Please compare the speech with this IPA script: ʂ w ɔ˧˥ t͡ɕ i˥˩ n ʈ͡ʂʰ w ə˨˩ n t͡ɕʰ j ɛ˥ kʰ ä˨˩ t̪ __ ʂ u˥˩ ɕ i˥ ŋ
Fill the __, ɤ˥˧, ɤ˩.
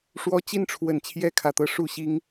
ɤ˥˧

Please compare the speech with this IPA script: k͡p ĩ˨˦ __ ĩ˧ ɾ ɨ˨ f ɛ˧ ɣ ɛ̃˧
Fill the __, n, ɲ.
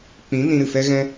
n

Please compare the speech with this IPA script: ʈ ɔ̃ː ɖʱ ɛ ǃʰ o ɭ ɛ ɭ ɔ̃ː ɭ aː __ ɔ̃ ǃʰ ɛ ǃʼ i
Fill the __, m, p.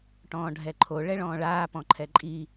p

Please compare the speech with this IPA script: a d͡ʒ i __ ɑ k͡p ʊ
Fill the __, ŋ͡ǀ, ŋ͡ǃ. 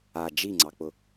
ŋ͡ǀ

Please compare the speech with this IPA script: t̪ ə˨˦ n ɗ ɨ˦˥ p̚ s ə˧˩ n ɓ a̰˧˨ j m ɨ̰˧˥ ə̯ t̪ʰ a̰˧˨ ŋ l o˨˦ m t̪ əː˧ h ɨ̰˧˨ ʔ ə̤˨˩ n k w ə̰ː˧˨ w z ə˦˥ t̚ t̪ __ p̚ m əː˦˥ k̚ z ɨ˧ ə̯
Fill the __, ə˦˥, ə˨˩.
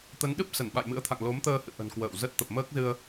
ə˨˩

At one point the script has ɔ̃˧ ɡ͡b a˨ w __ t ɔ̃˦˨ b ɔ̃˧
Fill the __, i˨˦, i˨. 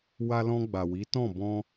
i˨˦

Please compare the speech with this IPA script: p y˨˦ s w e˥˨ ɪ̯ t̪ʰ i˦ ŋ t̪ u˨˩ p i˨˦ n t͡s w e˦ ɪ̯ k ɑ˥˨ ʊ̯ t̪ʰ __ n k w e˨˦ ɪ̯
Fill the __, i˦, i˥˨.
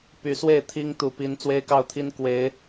i˦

